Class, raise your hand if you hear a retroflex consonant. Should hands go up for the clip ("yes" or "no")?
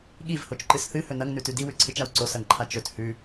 no